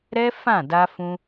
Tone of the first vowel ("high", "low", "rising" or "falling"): high